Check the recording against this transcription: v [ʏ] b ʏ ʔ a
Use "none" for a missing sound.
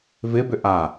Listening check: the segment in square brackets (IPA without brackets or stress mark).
ɪ